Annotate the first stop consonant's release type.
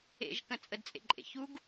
plain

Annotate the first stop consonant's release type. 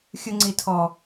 click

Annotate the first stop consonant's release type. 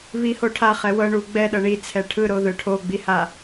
aspirated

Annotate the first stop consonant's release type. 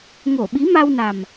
implosive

